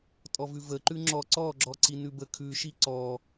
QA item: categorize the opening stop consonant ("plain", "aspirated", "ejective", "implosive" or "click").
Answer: ejective